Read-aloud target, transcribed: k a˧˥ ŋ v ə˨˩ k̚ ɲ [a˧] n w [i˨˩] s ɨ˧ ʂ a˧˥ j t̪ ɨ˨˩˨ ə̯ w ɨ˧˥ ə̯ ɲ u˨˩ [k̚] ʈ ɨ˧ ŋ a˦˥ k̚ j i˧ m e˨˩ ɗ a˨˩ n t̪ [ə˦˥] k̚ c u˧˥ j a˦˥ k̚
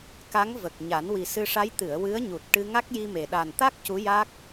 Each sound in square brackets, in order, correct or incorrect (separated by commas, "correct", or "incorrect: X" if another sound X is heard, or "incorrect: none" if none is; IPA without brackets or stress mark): incorrect: a˨˩˦, correct, incorrect: t̚, incorrect: a˦˥